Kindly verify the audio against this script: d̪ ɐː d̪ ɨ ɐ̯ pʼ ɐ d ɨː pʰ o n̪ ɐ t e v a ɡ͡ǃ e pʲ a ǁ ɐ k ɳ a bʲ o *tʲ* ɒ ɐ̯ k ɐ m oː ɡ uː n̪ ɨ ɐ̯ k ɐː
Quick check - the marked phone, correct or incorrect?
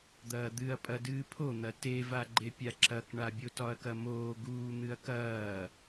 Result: incorrect